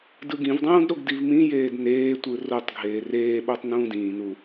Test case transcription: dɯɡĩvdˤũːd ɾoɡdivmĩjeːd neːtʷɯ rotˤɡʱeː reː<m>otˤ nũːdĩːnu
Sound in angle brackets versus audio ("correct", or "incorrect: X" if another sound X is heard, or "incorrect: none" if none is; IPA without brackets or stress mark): incorrect: ɓ